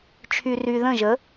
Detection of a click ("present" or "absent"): absent